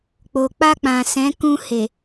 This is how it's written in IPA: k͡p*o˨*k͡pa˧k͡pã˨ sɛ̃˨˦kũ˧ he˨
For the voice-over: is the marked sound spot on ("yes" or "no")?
yes